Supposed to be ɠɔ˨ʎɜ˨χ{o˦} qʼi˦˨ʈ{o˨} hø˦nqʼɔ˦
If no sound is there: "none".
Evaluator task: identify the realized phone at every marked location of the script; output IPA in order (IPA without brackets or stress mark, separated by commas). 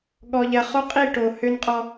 o˦, o˨